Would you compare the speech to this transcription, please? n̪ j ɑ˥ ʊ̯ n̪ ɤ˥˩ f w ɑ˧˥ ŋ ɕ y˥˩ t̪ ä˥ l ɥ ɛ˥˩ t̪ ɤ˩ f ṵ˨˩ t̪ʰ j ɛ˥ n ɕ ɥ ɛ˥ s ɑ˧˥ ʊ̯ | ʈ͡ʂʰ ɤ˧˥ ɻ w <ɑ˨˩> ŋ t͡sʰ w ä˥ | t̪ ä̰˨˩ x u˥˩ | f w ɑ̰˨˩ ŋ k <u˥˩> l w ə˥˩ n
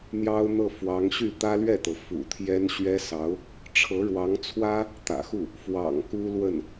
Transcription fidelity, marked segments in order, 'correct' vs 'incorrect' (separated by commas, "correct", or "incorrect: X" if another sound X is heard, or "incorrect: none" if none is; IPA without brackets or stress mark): incorrect: ɑ˧˥, incorrect: u˥